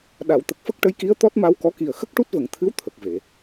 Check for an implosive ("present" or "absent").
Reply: present